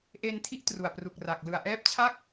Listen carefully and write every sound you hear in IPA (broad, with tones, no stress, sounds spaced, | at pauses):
ʔ e˧ n tʰ i˦˥ ʔ t r u˨˩ a̯ p r u˨˩ k̚ r a˨˩ k̚ l ɯ˨˩ a̯ ʔ ɛː˦˥ p̚ t͡ɕʰ a˥˩ k̚